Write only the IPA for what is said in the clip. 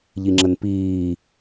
ʎiŋ͡ǁənpiː

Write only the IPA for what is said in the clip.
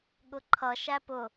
ɠʊǃʰʌ ʃæpʊ

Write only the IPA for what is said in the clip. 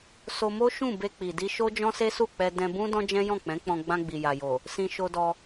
so˧mo˦ʃũ˦˨ be˧k͡pi˨di˧ ʃo˦ d͡ʒɔ̃˦se˦su˦˨k͡pɛ˧ dɛ̃˧bũ˦ dɔ̃˦d͡ʒɛ̃˦jɔ̃˦˨ k͡pɛ̃˨˦k͡pɔ̃˧ ɡ͡bã˧ɡ͡bi˨ja˨jo˨ | sĩ˧ʃo˧dɔ˧

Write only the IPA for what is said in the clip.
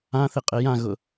ãθɪqʼe jãɣʊ

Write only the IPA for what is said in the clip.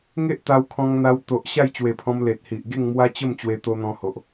ŋe˦ʔt̪a˧wkʰɔ̃˧ŋn̪a˧w t̪o˨ʔ ɕa˥˧j t͡ɕwe˨˩pʰɔ̃˧m le˨t̚hi˨ʔ ɡe˥˧ŋmwa˦t͡ɕə˥˧m t͡ɕwe˧t̪o˧n̪ɔ̃˧ho˨ʔ

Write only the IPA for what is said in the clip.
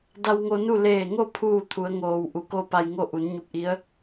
da˧wŋo˧nu˥˨ leː˧˩ŋo˥˨ pʰuː˥˨t̪ʰu˩˧ə̯ŋoː˩w ʔu˩˧ko˥˨pa˧j ŋo˥˨ʔu˩˧n ɲu˧p̚ʔi˧˥ə̯

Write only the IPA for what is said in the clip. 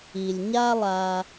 i˨lʲɲa˦lˠa˧

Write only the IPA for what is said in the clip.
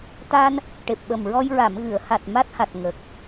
t̪a˧n | ʈe˨˩p̚ɓə˨˩mɹɔ˧j ɹa˨˩˨mɣɨ˨˩˨ə̯ha˨˩t̚ ma˦˥t̚ha˨˩t̚ ŋə˨˩k̚

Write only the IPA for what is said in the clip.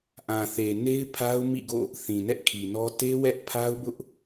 ʔã˨θe˨ne˦ɪ̯pʰa˦ʊ̯ mḭ˦˨ɡo̰˦˨ | θĩ˨nɛ˦ʔkʰi˨nɔ˦ te˦wɛ˦ʔpʰa˦ʊ̯bʊ˦ʔ

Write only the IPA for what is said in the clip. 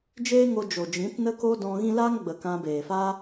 d͡ʒeː˦ŋo˧ d͡ʒo˨d͡ʒĩ˨˦tnə˦ko˦ dɔ̃˧ ɣĩ˦ laː˦ŋɡ͡bə˨ kã˧beː˨ fa˦

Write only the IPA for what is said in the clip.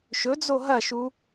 ʃɵd͡zo ɦɐʃu

